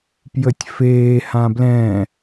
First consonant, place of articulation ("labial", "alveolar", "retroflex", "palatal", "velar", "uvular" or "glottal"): labial